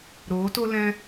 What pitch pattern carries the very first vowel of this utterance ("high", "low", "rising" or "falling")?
rising